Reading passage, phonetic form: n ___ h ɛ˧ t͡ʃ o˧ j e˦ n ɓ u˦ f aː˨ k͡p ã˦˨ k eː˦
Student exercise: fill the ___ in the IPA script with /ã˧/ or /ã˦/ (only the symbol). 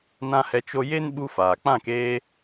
ã˦